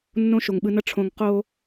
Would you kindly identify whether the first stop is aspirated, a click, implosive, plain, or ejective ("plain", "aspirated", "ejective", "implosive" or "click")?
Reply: implosive